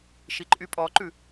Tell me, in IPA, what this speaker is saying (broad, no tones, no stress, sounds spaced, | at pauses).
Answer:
ʃ i ǃʼ y pʼ ɔ ǃ ʉ